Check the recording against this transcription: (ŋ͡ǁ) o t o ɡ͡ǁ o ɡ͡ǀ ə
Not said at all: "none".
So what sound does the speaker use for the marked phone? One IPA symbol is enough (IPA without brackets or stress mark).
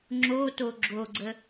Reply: ŋ͡ǁ